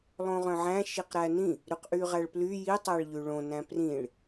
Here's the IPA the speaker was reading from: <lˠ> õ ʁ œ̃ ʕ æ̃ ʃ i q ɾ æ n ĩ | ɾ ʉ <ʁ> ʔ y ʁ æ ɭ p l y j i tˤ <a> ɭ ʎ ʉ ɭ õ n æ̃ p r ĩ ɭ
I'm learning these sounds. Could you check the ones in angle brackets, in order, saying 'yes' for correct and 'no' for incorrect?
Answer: yes, no, no

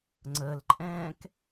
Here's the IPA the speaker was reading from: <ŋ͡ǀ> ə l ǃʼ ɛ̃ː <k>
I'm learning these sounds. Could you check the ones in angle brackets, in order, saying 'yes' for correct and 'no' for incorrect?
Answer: yes, yes

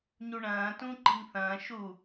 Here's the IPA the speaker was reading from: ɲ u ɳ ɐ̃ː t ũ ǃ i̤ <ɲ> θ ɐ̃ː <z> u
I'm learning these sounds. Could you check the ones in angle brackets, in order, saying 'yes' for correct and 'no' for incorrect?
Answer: no, no

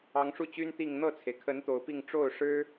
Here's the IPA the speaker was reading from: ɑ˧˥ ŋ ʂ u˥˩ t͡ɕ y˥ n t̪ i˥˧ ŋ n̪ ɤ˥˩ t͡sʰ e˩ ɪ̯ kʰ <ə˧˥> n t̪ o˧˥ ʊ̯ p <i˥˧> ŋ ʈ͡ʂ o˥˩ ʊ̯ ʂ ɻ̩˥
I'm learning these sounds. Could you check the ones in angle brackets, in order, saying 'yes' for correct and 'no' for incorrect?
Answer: yes, yes

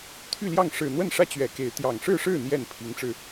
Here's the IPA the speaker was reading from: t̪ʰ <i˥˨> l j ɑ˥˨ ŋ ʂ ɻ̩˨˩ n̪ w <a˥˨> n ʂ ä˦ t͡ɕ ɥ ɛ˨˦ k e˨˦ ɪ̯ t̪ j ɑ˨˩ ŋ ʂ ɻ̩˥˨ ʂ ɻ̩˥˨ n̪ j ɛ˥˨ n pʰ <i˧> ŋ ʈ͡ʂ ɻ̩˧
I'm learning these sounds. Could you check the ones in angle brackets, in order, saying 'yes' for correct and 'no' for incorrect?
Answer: no, no, no

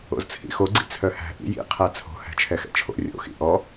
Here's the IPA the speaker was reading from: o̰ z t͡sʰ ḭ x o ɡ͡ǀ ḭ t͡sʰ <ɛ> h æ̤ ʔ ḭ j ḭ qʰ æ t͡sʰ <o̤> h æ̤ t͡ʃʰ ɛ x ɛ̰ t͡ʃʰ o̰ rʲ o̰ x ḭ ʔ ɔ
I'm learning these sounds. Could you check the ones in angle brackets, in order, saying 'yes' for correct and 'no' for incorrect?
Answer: no, yes

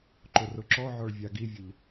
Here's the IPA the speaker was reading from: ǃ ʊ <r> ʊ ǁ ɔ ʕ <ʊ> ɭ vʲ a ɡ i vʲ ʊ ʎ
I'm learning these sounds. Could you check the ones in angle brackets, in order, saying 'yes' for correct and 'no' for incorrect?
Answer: yes, no

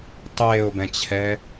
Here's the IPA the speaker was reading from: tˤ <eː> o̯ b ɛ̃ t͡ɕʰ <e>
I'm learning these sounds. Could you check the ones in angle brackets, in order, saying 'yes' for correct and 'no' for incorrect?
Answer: yes, no

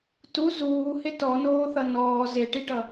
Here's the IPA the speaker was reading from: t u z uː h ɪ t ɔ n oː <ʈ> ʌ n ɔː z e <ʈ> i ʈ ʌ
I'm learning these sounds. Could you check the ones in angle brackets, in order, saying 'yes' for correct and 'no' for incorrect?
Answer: no, yes

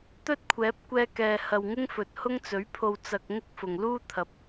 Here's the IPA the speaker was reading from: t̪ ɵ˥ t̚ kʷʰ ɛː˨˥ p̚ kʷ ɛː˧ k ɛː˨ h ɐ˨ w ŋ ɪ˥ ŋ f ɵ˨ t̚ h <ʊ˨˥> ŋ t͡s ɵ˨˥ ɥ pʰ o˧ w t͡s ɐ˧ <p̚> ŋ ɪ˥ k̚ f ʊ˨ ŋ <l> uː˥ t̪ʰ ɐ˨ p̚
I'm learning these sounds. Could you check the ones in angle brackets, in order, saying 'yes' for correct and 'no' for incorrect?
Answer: no, no, yes

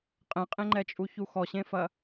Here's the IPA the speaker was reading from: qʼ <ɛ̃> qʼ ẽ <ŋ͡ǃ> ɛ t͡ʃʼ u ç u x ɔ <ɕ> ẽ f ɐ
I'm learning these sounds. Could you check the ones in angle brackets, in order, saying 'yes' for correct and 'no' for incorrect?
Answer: yes, yes, yes

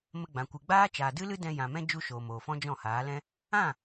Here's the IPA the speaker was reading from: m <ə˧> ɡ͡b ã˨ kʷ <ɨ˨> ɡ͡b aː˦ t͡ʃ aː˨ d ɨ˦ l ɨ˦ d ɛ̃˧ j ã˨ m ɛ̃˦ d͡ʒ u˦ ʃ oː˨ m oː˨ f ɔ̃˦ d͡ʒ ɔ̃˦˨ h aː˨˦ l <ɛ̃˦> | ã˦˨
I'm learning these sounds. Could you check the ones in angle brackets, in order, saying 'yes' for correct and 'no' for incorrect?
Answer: yes, yes, yes

